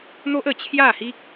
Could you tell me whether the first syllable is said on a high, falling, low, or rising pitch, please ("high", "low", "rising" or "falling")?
high